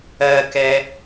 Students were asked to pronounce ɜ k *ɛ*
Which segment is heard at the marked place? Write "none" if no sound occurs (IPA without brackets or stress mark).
ɛ